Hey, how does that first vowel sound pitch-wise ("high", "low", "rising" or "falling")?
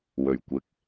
low